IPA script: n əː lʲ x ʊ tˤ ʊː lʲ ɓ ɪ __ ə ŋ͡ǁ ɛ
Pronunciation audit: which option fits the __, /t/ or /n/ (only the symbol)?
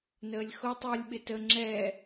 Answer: t